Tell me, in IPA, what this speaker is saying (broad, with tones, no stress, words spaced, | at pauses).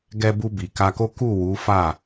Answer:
ɡɛ˧bu˧ bi˨ka˧ko˦ ku˦˨wu˨˦fa˦˨